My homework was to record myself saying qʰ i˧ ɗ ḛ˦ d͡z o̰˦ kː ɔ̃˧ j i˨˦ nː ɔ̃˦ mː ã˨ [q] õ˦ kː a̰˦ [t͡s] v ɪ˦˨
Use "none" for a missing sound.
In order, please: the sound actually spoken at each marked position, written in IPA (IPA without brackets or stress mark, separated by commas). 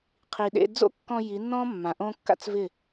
ʔ, t͡s